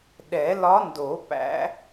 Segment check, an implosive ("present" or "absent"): present